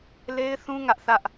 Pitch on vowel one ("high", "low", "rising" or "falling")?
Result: high